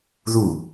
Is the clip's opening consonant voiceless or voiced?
voiced